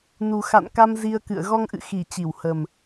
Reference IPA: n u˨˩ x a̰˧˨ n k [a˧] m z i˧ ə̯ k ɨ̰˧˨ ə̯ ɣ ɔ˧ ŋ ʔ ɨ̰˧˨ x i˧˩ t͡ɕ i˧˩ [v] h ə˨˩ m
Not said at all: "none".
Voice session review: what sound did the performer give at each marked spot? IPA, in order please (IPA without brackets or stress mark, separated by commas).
a˧, w